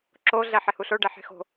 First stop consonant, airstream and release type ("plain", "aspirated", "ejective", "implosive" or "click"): click